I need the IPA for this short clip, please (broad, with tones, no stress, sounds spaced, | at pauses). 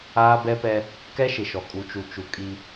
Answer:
aː˦ b ɛ˦ p ɛ˦ | k ɛ˦ ʃ ɪ˨ ʃ ɔ˨ kʼ u˨ t͡ʃ u˨ t͡ʃ u˨ kʼ i˦